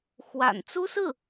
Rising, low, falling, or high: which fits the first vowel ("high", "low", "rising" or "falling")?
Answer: low